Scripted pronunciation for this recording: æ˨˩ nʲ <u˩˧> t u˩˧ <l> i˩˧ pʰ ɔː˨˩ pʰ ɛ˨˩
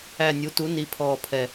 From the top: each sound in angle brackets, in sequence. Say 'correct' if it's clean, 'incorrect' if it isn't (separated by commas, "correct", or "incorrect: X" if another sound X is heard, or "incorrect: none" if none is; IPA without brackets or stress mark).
correct, incorrect: n